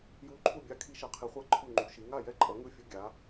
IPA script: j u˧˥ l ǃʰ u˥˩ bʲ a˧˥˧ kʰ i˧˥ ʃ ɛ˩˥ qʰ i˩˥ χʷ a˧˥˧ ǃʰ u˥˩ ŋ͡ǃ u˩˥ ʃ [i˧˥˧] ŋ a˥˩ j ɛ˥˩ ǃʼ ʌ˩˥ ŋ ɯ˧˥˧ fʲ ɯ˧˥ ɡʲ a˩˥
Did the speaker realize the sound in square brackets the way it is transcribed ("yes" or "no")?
no